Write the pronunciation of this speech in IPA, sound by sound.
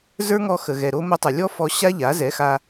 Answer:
z ə˞˦ ŋ ɔ˧ x ə˨ ɣ ɛ˨ ɾ o˧ m o˧ tˤ ə˨ lʲ ɔ˦ f ɔ˧ ɕ a˦ ʎ a˨˦ z ɛ˨˦ x a˧

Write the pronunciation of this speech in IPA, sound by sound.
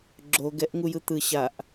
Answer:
ɡ͡ǁ o ɡ ɛ ʔ ŋ u j ɯ t̪ ɯ ɕ a ʔ

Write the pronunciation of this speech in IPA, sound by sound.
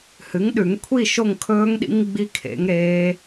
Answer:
h ɨ˩˥ ŋ ɗ ʉ˨˩˦ ŋ kʷʰ i˥˧ ʃ o˥˧ ŋ kʰ ɵː˦˥ ŋ ɗ ḭ˦˥ ŋ ɡ͡b i˦˥ kʰ ḛ˩˥ ŋ ɾ eː˦˥

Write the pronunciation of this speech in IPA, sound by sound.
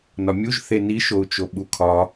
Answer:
n ɒ mʲ u ʒ θ e n i ʃ o u̯ t͡ʃ o ɓ u kʰ ɒ

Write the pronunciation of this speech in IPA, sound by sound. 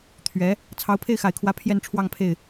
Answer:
t̪ʰ ɥ ɛ˧˥ | t͡sʰ ɑ˧˥ ʊ̯ pʰ e˥˩ ɪ̯ x a˨˩ ɪ̯ kʰ w ä˧˥ pʰ j ɛ˥˧ n ʈ͡ʂʰ w ɑ˥˧ ŋ pʰ e˥˩ ɪ̯

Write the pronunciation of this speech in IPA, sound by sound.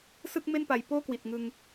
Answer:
s ɯ˥˩ k̚ m e˥˩ n p a˨˩ j p oː˥˩ k w i˨˩ t̚ ŋ ɯ˧ ŋ

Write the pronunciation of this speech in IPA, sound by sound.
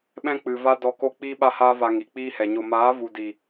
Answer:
ɓ ɛ̃˦ k͡p ɨ˨ v a˦ d ɔ˧ k o˦ k͡p iː˦ ɓ a˦ h aː˦ v a˧ ŋ i˨ k͡p iː˦ h ɛ˨ ɲ o˧ m aː˨˦ v u˨ d i˨

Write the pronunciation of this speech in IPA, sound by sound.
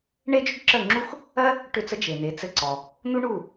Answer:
ɳ e˥ d͡ʒ ʏ˥ ɖ ǁ ə˥˩ ŋ͡ǁ u˥ x | ɜ˥ | ʈ ʏ˥˩ t͡s ə˥ d͡ʒ e˩ n̪ e˩˥ t͡s ɘ˧ ǀ ɔ˩ | n̪ u˥ ɳ u˥˩

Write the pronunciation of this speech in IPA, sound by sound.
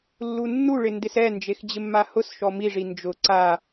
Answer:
lː u nː u ɭ ɪ n d ɪ s ɛ n d͡ʒ e x d͡ʑ ɪ mː a h ʊ s ʃ ɔ m i ʐ i n d͡ʒ ʊ ǀ a

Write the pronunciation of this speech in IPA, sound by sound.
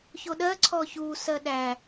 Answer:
ç o ɗ ɜ ǀʰ ɔ ç u s ɜ ɗ æ

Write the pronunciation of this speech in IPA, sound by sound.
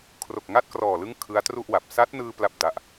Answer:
kʰ r o˨˩ k̚ ŋ a˥˩ t̚ k r ɔː˨˩ l ɯ˦˥ ŋ kʰ ɯ˦˥ a̯ t r u˥˩ ʔ w a˨˩ p̚ s a˦˥ t̚ n ɯː˧ p l a˥˩ p̚ d a˦˥ ʔ

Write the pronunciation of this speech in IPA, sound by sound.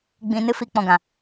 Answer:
ɡ͡b ĩ˧ n ɨ˦ f i˦ k͡p ɔ̃˧ ɡ ã˨

